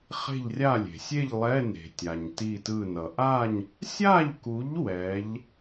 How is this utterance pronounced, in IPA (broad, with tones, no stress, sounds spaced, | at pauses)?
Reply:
χ e̤˥˨ ʎ rʲ a˥˨ lʲ e̤˩ sʲ e˥˨ ʎ lˠ ɛ˧˥˧ n e̤˩ tʲ a˩ ɲ t i˧˩ t ɯ˧˩ n ʌ˩ ʔ a˥˨ ɲ | sʲ a˥˨ ʎ k u˨˥ ʎ w ɛ˨˥ ʎ